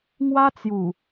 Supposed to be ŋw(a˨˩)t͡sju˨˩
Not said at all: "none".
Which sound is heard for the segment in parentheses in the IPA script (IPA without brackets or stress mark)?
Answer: a˦